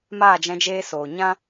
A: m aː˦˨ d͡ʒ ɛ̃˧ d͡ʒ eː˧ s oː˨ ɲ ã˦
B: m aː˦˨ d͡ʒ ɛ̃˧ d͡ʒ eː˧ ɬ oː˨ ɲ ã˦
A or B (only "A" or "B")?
A